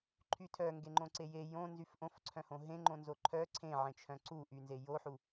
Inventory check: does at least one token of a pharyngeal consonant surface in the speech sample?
yes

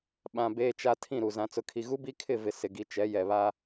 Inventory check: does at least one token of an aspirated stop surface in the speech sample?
yes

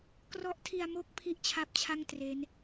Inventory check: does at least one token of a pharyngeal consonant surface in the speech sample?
no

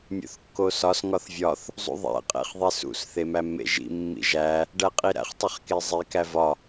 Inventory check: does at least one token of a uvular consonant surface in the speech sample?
yes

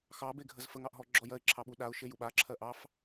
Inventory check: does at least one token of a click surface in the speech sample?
yes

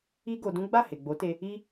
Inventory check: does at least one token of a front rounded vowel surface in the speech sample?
no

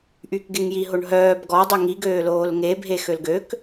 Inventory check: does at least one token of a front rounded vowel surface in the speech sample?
yes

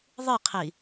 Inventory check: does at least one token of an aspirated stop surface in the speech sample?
yes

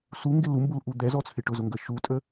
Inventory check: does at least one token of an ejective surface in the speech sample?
yes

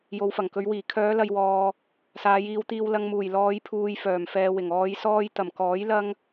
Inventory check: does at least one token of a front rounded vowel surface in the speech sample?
yes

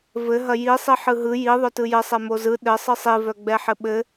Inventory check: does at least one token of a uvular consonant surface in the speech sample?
no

